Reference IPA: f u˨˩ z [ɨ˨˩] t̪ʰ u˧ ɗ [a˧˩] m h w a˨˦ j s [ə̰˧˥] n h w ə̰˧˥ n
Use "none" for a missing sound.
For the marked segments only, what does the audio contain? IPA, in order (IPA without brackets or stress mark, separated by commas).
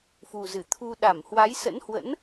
ɨ˧˩, a˧˩, ə̰˧˥